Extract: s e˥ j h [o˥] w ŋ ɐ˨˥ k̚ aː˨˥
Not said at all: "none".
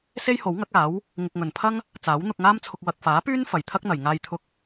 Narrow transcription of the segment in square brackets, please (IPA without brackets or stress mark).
o˨˥